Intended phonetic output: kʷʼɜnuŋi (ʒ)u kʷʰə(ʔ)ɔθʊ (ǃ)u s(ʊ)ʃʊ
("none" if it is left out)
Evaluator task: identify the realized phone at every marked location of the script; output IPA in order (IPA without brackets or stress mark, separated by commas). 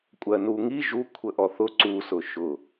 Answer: ʒ, ʔ, ǀ, ʊ